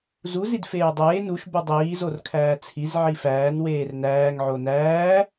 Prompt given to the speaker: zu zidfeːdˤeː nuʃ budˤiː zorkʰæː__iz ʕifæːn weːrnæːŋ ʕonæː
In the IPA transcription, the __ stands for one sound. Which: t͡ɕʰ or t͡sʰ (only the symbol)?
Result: t͡sʰ